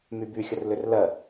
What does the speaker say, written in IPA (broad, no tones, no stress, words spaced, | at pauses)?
myby xʲərlʏrlɜ